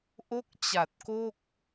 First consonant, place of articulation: glottal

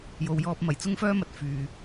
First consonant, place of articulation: palatal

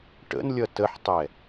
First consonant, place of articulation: retroflex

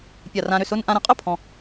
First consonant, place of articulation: labial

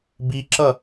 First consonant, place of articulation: labial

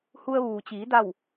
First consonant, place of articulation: glottal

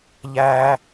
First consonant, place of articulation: palatal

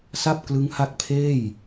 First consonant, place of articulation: alveolar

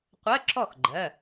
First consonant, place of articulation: uvular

